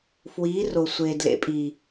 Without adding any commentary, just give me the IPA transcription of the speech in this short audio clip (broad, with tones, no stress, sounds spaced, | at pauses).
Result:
f w iː˨˦ r o˨ sʷ eː˨ d l ḛ˨˦ pʼ iː˨